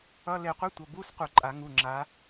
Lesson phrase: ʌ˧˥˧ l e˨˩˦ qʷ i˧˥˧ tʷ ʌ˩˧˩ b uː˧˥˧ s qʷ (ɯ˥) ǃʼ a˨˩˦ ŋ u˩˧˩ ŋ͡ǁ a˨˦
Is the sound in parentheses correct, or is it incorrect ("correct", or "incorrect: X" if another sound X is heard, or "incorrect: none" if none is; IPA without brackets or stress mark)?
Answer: incorrect: ɯ˨˩˦